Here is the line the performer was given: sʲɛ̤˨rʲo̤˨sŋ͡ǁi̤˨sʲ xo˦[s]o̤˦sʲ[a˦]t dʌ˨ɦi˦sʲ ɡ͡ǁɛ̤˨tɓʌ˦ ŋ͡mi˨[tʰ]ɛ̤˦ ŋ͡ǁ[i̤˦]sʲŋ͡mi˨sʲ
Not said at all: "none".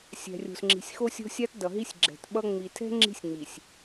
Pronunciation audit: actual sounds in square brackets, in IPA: sʲ, a˦, tʰ, i̤˦

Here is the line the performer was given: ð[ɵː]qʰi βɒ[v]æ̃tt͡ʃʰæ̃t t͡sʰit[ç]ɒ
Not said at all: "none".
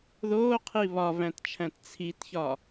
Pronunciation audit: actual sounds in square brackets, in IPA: oː, v, ç

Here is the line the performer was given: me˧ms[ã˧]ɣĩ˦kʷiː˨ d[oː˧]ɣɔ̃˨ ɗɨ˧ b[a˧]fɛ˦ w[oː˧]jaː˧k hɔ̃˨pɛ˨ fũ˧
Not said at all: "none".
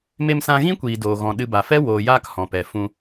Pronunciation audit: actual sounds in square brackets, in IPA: ã˧, oː˨, a˨, oː˨

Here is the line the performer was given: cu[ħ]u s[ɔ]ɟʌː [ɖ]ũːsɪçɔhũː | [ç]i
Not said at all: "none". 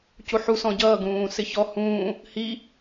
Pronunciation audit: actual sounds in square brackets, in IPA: ħ, ɔ̃, ɡ, h

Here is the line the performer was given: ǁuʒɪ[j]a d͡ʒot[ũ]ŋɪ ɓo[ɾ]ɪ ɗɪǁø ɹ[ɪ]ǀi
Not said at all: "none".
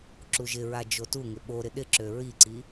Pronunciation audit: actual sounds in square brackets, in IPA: ɹ, u, ɾ, i

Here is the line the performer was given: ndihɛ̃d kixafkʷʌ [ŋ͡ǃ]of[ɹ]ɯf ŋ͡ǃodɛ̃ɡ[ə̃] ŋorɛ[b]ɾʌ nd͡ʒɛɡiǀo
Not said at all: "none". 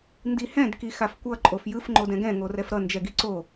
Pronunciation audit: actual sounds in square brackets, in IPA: ǃʼ, j, ɛ̃, f

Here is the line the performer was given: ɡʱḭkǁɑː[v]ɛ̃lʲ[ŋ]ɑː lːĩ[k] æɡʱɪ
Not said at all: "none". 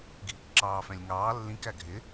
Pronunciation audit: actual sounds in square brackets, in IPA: f, ŋ, k

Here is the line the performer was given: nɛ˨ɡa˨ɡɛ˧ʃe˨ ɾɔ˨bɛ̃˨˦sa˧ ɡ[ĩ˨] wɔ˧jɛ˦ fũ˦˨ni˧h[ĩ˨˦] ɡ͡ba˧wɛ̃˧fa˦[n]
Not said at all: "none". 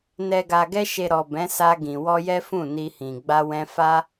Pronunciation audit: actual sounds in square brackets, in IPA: ĩ˨, ĩ˨, none

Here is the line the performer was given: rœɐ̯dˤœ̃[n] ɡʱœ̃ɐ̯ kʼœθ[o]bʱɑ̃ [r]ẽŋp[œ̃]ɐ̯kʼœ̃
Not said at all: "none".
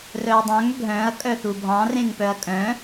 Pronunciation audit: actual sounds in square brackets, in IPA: ŋ, u, r, œ

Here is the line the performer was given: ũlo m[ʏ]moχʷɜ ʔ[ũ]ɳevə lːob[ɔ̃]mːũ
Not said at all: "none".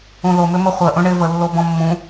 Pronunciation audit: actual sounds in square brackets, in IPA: ʏ, ũ, ɔ̃

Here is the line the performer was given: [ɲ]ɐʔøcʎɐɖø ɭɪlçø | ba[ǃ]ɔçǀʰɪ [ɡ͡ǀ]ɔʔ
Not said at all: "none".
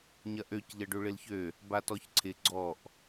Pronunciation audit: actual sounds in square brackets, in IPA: ɲ, t, ɡ͡ǀ

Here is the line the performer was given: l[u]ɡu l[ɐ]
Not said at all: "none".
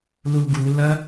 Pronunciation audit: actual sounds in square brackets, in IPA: u, ɐ

